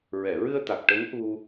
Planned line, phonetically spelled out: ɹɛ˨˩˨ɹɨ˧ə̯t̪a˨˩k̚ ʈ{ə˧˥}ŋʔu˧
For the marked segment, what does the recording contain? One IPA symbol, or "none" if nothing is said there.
ə˧˥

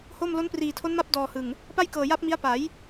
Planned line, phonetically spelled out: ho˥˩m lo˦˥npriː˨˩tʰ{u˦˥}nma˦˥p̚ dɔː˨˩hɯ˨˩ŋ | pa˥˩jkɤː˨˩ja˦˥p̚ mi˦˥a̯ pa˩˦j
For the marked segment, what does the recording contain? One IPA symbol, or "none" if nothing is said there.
o˦˥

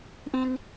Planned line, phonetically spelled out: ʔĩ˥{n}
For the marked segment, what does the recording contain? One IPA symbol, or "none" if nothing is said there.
n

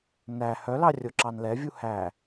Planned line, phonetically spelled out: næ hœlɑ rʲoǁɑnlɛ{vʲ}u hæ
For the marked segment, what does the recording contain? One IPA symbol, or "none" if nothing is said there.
vʲ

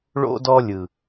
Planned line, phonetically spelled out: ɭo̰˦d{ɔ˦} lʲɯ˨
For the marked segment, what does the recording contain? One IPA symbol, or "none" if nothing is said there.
ɔ˦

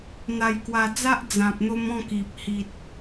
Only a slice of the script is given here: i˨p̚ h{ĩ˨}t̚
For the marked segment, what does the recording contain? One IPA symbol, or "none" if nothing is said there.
i˨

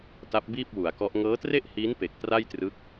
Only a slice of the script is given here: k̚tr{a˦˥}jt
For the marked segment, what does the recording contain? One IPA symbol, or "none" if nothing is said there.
a˥˩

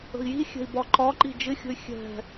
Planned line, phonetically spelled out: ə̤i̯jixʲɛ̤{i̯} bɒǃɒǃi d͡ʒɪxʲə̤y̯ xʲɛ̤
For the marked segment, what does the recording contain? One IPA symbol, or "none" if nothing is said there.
i̯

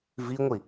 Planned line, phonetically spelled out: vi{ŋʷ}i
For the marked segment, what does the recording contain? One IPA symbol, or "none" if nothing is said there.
ŋʷ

